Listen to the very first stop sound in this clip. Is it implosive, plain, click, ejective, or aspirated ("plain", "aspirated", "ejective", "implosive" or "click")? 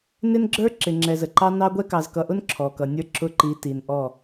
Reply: click